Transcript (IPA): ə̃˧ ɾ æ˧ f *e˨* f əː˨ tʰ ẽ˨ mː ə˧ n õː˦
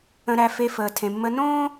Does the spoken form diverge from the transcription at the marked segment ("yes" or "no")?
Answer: yes